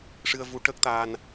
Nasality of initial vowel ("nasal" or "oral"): oral